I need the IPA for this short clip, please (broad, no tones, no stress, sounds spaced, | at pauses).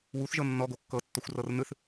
w u θ ʒ ɤ nː ɔ ɡ o kː ɤ tː ɔ xʷ r ɤ r n ɯ θ